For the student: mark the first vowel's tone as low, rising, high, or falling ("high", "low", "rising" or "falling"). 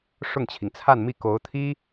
falling